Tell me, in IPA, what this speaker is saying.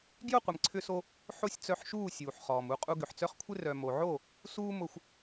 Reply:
ɡjʊ˦˨qʷɪ˨mǀʰʏ˧so˧ | ħo˦sʲ t͡sœ˧ħʃuː˦˨ sʲuː˨ħ χɔː˨mu˧ qʼu˧ɡʏ˨ħt͡sœ˦χkʷʰɪ˦ rœ˨ mo˨ʕo˦˨ | suː˦mʊ˧xʷ

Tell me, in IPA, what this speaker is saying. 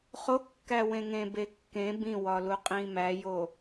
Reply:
χokːæwẽ ŋẽbe kːẽ bĩwɒluqʼĩ mæjo

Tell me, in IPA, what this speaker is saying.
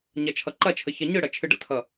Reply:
ɲɐt͡ʃʰʌǃɐt͡ʃʰə çɐɲɯɽɐ t͡ʃʰɨɖə̰tʰʌ

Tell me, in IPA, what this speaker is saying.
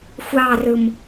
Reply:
xʷɑːrɯm

